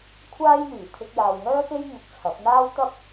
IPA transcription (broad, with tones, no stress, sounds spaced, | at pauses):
kʷʰ aː˥ j n̪ yː˨˩ t̪ʰ ɪ˧ k̚ j aː˨ w ŋ œː˥ p e˥ j ŋ ʊ˧ k̚ t͡sʰ ɐ˨˥ p̚ n̪ aː˥ w t̪ ɐ˥ p̚